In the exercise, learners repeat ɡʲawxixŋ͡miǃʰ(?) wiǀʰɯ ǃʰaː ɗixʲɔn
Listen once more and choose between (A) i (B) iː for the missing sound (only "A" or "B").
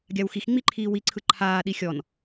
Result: B